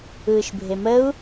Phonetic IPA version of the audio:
ɯː ʃ bʱ e m ə u̯

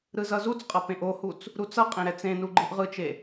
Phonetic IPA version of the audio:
ɾ ɯ z ʌ z u t͡s qʼ ʌ p ẽ ʔ o h u t͡s | ɾ u t͡s ʌ qʼ ẽ ɾ ɛ t͡s ẽ n u ɡ͡ǃ ɯ ʔ ʁ ɯ t͡ʃ e

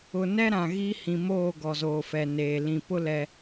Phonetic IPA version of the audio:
ʊ˨ n ɛ˦ ɾ ã˨ ɣ i˦ h ĩ˨ m oː˦˨ ɡ ɔ˨ z oː˨ f ɛ˨ n eː˨ l ĩ˨ p ʊ˦ l ɛ˦

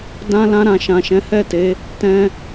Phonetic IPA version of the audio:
d ã˧ l ã˧ ɾ ã˨ ʃ ã˨ ʃ ɛ̃˨˦ h ɛ˦˨ t e˨˦ | t ɛ̃˧

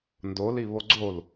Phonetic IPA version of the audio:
n d o l i β o ɡ͡ǀ o l

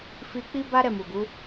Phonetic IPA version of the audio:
f i˧ k͡p i˦ b a˦ ɾ ɛ˦˨ m u˨ ɡ u˨˦

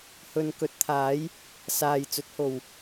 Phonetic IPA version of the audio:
h ɵ˨ n k ɵ˨˥ t̚ t̪ʰ aː˨˥ j | s aː˨ j t͡s ɵ˨˥ t̚ h o˨ w

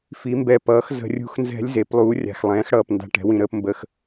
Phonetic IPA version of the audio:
f i˩˥ m b ɛ˧˩ p ʌː˩˥ x z ə̤˧˩˧ rʲ ṳ˧˥ x n z ɛ̤˧˥ lʲ z e˩˥ p lˠ uː˩˥ rʲ a̤˩˧˩ x lˠ ɛ̃ː˩˥ x ɽ ʌː˧˩ p n d a̤˧˥ ʈ ɛ̤˩˥ w ĩ˧˩ ɾ əː˧˥ p m b ə˧˩ x

